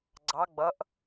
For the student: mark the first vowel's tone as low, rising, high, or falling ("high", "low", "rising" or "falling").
rising